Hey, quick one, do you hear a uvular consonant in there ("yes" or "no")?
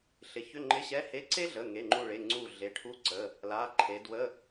no